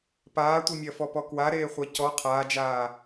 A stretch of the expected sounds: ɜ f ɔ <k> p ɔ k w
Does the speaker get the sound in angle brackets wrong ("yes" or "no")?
yes